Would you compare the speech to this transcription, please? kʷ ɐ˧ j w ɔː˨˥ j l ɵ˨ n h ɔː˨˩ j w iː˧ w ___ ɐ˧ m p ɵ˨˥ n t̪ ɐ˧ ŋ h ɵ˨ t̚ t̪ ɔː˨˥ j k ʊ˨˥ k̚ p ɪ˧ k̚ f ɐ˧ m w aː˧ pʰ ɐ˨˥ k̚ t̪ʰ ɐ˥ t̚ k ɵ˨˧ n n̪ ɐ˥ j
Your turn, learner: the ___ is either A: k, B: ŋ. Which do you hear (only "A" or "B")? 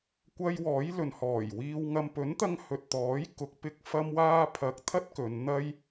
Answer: B